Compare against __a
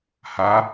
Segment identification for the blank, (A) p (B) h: B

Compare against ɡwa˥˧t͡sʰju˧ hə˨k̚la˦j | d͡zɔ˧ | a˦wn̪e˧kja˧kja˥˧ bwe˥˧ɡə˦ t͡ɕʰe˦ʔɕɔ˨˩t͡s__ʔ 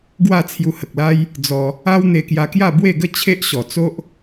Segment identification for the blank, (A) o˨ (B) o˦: B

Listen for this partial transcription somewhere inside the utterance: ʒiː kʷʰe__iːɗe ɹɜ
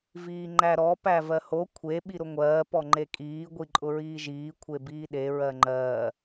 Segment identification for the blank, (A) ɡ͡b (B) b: B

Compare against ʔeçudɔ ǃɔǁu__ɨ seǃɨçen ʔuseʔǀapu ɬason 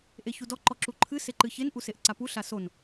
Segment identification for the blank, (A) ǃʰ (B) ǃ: A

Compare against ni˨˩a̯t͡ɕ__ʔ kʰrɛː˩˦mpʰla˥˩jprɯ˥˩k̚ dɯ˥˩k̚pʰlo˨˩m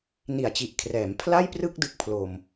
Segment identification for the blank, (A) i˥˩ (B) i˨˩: B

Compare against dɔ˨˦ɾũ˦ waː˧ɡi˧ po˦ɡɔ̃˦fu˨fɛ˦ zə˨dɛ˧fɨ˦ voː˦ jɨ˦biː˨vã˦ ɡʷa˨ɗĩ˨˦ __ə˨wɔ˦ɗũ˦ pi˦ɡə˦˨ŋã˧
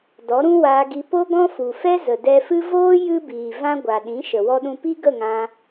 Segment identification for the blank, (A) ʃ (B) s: A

